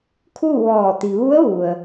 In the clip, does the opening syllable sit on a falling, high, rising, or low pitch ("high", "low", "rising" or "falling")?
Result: falling